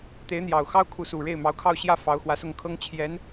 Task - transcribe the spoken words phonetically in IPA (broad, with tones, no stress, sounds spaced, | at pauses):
t̪ e˧˥ ɪ̯ n̪ j ɑ˨˩ ʊ̯ x ɑ˥ ʊ̯ kʰ u˧˥ s u˨˩ ɻ e˥˩ ɪ̯ m ɑ˧˥ ʊ̯ kʰ ɑ˥˧ ʊ̯ ɕ j ä˥˩ f ɑ˧˥ ʊ̯ x w ä˧˥ s ʊ˥˩ ŋ kʰ ɤ˥ ŋ t͡ɕʰ j ɛ˧˥ n